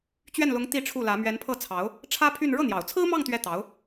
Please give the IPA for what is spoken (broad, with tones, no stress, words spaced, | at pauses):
t͡ɕɥɛ˥˩nlʊ˧˥ŋ t̪i˥˧ʈ͡ʂʰu˥˩lä˧˥ mɥɛ˧˥npʰɤ˥˩t͡sʰɑ˧˥ʊ̯ | ʈ͡ʂʰä˥pʰy˥˧n ɻɤ˥˩n̪jɑ˨˩ʊ̯t͡sʰɹ̩˥mɑ˥˧ŋ t̪ɥɛ˥˩t̪ɑ˧˥ʊ̯